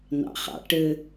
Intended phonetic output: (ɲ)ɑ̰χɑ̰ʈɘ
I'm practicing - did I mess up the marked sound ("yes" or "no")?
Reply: yes